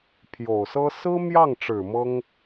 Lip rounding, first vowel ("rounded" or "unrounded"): rounded